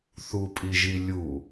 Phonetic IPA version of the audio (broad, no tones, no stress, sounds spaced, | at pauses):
θ u pʼ i ʒ i lʲ u